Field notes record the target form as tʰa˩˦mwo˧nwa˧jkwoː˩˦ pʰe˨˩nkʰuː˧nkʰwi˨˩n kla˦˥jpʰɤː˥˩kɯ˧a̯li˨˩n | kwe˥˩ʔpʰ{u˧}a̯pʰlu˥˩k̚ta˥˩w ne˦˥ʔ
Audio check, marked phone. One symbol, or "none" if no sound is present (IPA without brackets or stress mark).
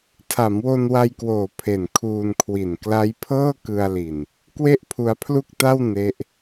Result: u˧